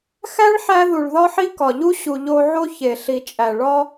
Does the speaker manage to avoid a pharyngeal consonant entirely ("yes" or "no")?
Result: no